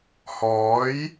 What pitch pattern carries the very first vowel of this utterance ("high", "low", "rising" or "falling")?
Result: rising